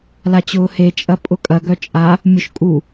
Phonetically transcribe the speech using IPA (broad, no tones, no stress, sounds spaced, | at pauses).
l a t͡ɕ ʊː h e t͡ʃʼ ɐ pʼ ʊ kʼ ɐ ɡ œ t͡ʃʼ a | mʲ ʊ ʃ kʼ u